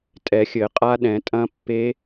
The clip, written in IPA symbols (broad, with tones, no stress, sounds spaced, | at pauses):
tʼ ɛ˨˩˦ xʲ ɘ˨˩˦ qʼ a˦˥ ɗ ɛ̃˨˩˦ tʼ ɐ̃˦˥ pː e˦˥